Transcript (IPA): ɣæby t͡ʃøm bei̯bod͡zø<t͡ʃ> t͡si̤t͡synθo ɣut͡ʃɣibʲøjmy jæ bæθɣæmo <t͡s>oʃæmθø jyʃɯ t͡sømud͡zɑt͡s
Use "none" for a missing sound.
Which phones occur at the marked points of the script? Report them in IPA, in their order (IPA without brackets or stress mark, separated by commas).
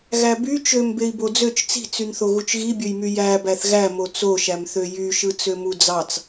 t͡ʃ, t͡s